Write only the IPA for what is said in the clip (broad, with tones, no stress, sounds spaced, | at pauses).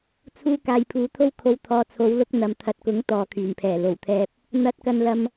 t͡sʰ uː˧ k aː˨ j pʰ uː˨˧ t̪ʰ o˥ w kʰ o˧ w t̪ʰ ɔː˨˧ t͡sʰ o˨˧ w l ʊ˧ k̚ n̪ ɐ˨ m t̪ʰ ɐ˨˥ t̚ k ʊ˨˥ ŋ t̪ ɔː˨ kʰ yː˨˩ n pʰ ɛː˨˩ l o˨˩ w t̪ʰ ɛː˧ p̚ | n̪ ɐ˧ t̚ k ɐ˧ n l ɐ˧ m